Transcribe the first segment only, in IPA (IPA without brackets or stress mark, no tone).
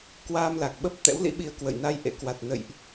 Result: k